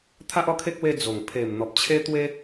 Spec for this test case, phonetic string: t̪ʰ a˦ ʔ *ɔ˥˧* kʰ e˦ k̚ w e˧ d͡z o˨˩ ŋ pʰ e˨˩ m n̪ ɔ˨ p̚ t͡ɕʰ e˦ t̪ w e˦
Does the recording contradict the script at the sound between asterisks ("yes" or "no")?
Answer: no